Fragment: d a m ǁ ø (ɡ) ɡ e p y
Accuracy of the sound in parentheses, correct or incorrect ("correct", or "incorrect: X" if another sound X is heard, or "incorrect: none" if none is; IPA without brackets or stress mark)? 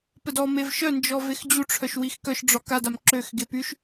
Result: incorrect: x